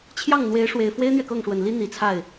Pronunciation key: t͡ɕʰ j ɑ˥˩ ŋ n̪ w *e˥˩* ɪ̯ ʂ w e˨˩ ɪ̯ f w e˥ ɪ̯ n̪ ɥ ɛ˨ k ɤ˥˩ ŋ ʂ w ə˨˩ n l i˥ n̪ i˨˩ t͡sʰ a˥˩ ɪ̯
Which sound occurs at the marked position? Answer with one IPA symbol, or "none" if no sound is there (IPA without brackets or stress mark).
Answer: e˧˥